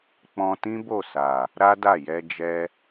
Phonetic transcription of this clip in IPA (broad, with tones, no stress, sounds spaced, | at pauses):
k͡p ɔ̃˧ t ĩ˦ b o˦˨ s a˨ | ɾ a˦ d a˦˨ j ɛ˧ d͡ʒ ɛ˧